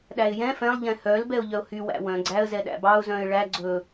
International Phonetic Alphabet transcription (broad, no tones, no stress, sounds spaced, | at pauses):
ɗ æ ɪ̯ j ɛ̃ f ɛ̃ lˠ ʎ ɛ̃ h œ l b ɛ ʊ̯ ʎ œ ʊ̯ h y w æ̰ w œ̃ ɡ͡ǀ æ ə̯ z ɛ ɗ æ̰ b ɑ ʊ̯ z œ̃ ɪ̯ ɭ æ ɡ͡ǀ ɵ